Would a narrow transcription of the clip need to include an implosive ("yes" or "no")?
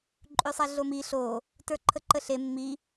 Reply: no